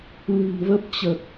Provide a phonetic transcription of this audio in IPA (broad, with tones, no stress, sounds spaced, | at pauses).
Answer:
l ɨ̤˨˩ n v ə˦˥ p̚ t͡ɕ ə˨˩ t̚